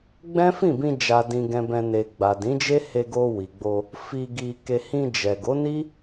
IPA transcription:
ɡ͡b ɛ̃˦ f ĩ˦˨ b ĩ˧ d͡ʒ a˨ d ĩ˨ ɡ ɛ̃˨ b ɛ̃˨ n e˨ ɡ͡b a˨ d ĩ˨˦ d͡ʒ e˦ h e˧ ɡ o˧ w i˨ ɡ͡b o˧ | f i˧ ɡ i˧ k e˧ h ĩ˧ d͡ʒ ɛ˨ ɡ o˨˦ n i˦

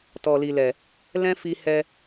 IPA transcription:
t ɔ˨ l i˨ l ɛ˨ | l ɛ̃˦ f i˧ h ɛ˧

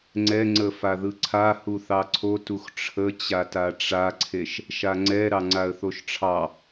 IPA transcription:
ŋ͡ǀ ɛ ŋ͡ǀ ə f a ð ɯ ǀʰ a h u θ ɑ ǀʰ o t u x ʈ͡ʂʰ ə t͡ɕ a t a ʈ͡ʂ a ǀʰ e ʃ | ʃ a ŋ͡ǀ ɛ ɾ ɑ ŋ͡ǀ a ə̯ θ o ʃ ʈ͡ʂʰ ɑ

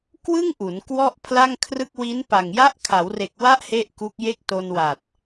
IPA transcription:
k w ɯ˥˩ ŋ ʔ u˩˦ n k w ɔ˥˩ ʔ pʰ l a˥˩ ŋ kʰ r ɯ˥˩ k̚ w i˦˥ n p a˨˩ ŋ j a˦˥ ʔ kʰ a˩˦ w r e˨˩ k̚ w a˦˥ ʔ h e˥˩ ʔ k u˦˥ k̚ j e˥˩ k̚ t o˧ n w a˨˩ t̚

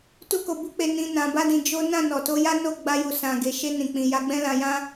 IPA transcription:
t u˦ k o˧ b u˦ k͡p e˧ n ĩ˧ n ã˧ b a˦ d ĩ˧ d͡ʒ o˦ n ã˦˨ n ɔ˨ t o˧ j a˦ n o˦˨ ɡ͡b a˧ j u˨ s ã˨ ɡ e˨ ʃ e˧ n ĩ˨ k͡p ĩ˨ j a˨˦ ɡ͡b ɛ̃˦ l ã˧ j ã˦

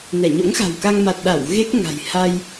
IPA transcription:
n ɛ˧˩ ɲ o̰˧˥ ŋ x a̤˨˩ w k a˧ ŋ m a˨˩ t̚ ɗ a˧˩ w ɣ e˦˥ k̚ ŋ a̤˨˩ j h a˧ j

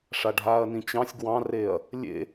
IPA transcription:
ʂ a ɖʱ aː ɐ̯ n ĩ t͡ɕ ɑ̃ sʲ ɡ w ɑ̃ r eː ɐ̯ | lʲ ḛ

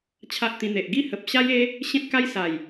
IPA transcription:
t͡ɕʰ a˦ ʔ t̪ ĩ˧ n̪ e˨ ʔ ɡ i˦ h ə˨ p̚ ɕ a˦ j e˦ | ɕ ẽ˦ t̚ k a˦ j s a˨˩ j

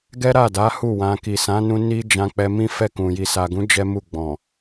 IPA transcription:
ɡ ɛ˦ ɾ a˦˨ d a˨˦ h u˦˨ w ã˧ k i˨ s ã˨˦ n ũ˧ n i˦ d͡ʒ ã˧ k͡p ɛ˧ m ĩ˦ f ɛ˦˨ k ũ˨ j i˨ s a˨ ɡ ũ˨˦ d͡ʒ ɛ˦ m u˦˨ ɡ͡b ɔ̃˨

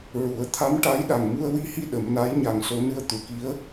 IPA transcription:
ɹ u˨˩˦ ə̯ t̪ʰ a˧˥ m ʈ a˧˥ j ɗ a˨˩ ŋ m u˧ ə̯ w i˧ h i˧ ɗ ə˨˩˦ m n a˧˥ j ɲ a˨˩ ŋ s o˨˩˦ n ɨ˧ ə̯ t̪ u˨˩˨ k i˧˥ ə̯

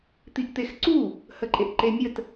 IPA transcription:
t̪ i ʔ t̪ e x ǀ u | h ə ǃʼ e ʔ ǃ e mʲ ə t

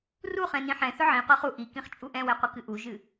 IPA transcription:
r u χ ɛ̃ n ĩ ħ ɛ̃ θ ɵ ʕ ĩ qʷ ɨ χ u ʔ i k ĩ χ t͡ʃʼ u ʔ ɛ̃ w ɛ qʷ ɨ k ɨ ʔ u ʒ ɨ

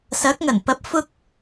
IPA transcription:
s ɐ˨˥ k̚ ŋ ɐ˨˩ n p ɐ˨˥ p̚ f ʊ˧ k̚

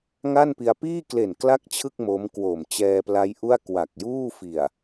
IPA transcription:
ŋ a˥˩ n p i˧ a̯ p iː˥˩ k l e˨˩ n k l a˥˩ k̚ t͡ɕʰ ɯ˥˩ k̚ m o˦˥ m k w o˨˩ m t͡ɕ ɛː˧ p l a˦˥ j ʔ u˥˩ a̯ k w a˨˩ k̚ j uː˥˩ f i˨˩ a̯

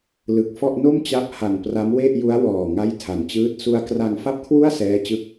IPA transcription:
l ɯ˨˩ k̚ f ɔ˥˩ ʔ n o˥˩ m t͡ɕ a˦˥ p̚ h a˨˩ n p r a˦˥ m w e˥˩ ʔ j u˦˥ a̯ w ɔː˨˩ ŋ a˥˩ j tʰ a˨˩ n t͡ɕ ɯː˥˩ t̚ s u˧ a̯ k r a˧ ŋ f a˥˩ p̚ kʰ w u˥˩ a̯ s ɛː˦˥ t͡ɕ ɯ˦˥ k̚

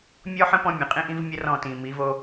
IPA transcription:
mʲ ɔ˦ ħ ə̃˦ p ɔ̃˦ mʲ ə̃˨ qʼ ĩ˦ ʔ ĩ˦ v mʲ ə˦ r ɔ̃˦˨ t ĩ˨ m i˨˦ v o˧

